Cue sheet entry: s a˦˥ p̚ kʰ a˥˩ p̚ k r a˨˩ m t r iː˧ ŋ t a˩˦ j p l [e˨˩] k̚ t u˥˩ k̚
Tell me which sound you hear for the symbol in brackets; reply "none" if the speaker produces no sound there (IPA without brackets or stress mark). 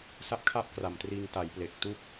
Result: e˨˩